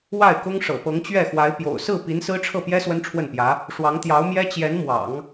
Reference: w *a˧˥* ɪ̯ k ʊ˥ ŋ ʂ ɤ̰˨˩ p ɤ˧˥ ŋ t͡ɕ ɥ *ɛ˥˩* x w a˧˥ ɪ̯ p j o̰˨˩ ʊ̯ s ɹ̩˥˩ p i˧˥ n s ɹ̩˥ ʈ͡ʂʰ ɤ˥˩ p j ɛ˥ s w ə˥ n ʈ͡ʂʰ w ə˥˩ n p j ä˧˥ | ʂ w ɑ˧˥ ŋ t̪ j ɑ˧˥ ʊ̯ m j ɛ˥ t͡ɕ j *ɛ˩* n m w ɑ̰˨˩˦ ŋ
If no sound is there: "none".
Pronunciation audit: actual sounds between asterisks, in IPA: a˥˩, ɛ˥˩, ɛ˧˥

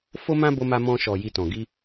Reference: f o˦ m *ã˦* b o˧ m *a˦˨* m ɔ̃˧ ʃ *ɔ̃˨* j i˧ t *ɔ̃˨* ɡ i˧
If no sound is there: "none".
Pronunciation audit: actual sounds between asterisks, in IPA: ã˦, a˧, ɔ˨, ɔ̃˨

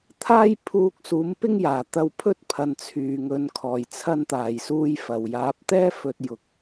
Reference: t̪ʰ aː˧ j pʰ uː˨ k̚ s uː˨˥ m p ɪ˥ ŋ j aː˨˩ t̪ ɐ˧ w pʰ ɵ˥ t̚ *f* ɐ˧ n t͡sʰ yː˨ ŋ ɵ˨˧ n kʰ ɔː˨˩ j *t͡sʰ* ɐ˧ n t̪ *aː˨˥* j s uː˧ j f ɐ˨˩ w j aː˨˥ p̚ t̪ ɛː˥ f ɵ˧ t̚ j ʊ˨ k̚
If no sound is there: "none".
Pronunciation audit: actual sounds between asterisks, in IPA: pʰ, t͡sʰ, aː˨˩

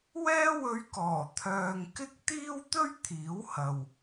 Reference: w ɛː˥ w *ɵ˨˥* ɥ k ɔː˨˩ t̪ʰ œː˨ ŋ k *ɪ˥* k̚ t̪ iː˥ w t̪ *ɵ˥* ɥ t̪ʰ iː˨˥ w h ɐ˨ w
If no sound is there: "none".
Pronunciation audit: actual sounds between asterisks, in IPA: ɵ˧, ɪ˥, ɵ˥

